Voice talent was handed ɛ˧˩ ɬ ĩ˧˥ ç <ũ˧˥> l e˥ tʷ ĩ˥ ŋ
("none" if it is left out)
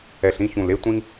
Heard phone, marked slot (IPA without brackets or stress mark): ũ˧˩